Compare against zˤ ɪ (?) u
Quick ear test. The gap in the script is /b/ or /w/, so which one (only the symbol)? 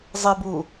b